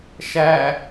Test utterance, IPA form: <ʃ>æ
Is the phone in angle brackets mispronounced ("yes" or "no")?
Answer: no